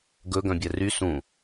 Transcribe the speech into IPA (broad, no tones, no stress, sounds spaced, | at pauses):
ɡ ɵ ɡ œ̃ bʲ ɛ r y s ũ